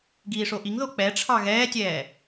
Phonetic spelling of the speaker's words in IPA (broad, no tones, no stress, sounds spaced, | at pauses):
ɡ iː ʂ o ʔ i ŋ ð o k͡p ɛ ʈ͡ʂʰ ɑ ɣ ɛː tʲ ɛː